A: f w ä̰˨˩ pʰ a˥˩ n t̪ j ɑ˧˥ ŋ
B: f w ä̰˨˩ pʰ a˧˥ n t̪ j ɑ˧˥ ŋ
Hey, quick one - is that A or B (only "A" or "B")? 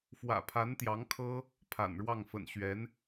B